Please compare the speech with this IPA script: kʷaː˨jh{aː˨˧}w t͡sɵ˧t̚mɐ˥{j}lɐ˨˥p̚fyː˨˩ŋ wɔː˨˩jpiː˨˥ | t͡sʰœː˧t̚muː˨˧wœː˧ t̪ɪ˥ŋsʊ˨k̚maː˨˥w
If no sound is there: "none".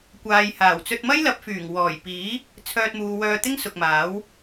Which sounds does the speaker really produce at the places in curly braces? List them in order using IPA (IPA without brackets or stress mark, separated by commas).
aː˨˩, j